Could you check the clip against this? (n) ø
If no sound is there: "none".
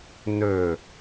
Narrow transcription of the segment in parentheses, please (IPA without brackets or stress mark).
n